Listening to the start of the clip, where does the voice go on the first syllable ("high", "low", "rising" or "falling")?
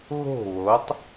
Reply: falling